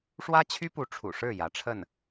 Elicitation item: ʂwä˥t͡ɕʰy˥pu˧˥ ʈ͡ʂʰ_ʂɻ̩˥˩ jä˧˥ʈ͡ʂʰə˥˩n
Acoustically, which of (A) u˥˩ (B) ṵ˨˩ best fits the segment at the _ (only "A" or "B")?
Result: B